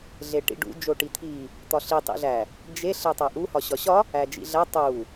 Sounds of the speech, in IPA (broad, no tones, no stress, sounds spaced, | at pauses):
ɮ e ʈ ḭ ɖ ṵ d͡ʒ o ʈ i t̪ʰ i | t̪ ɒ ɬ i tˤ ḭ ɮ æ | d͡ʒ e ɬ e tˤ æ ʔ u h ɒ ɕ ɒ ɕ ɒ | æ d͡ʒ ḭ ɮ æ tˤ u